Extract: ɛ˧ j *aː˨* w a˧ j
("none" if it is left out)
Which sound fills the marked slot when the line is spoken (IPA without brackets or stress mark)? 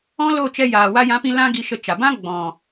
aː˨